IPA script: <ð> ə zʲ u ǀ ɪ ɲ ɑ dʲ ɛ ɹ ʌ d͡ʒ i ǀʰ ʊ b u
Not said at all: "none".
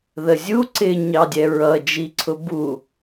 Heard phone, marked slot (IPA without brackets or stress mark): ð